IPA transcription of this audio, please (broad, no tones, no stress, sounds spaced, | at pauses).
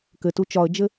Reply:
k ɘ t u t͡ʃ ɒ ə̯ d͡ʒ ɘ